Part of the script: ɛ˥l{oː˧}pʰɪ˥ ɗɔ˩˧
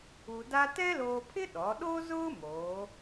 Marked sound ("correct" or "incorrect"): correct